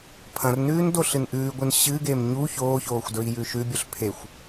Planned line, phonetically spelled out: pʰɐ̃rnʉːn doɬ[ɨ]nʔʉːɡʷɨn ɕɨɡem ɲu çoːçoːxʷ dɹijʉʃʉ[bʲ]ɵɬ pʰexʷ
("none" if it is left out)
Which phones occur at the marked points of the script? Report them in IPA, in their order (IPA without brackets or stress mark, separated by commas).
ɨ, bʲ